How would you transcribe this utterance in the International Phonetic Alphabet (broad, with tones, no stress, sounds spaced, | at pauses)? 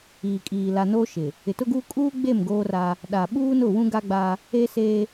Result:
iː˨ kʼ iː˨ l a˨ n oː˦ ʃ ɪ˨ | ɪ˨ t ʊ˦ ɡ uː˦ kʼ uː˦ ɡ͡b e˦˨ m ɡ oː˦ r a˦ | ɗ a˨ ɓ uː˦ n ʊ˦˨ w ũ˦ ɡ a˦ ɡ͡b a˦ | eː˦ s eː˦